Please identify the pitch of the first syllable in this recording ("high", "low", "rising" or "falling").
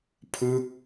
falling